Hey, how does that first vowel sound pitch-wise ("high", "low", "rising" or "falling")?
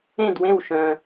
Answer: falling